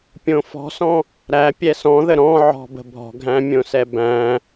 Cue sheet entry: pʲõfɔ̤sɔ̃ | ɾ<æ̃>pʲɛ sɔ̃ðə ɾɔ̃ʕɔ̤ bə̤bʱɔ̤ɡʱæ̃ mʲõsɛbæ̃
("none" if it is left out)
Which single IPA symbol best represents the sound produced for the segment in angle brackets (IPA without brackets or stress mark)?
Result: æ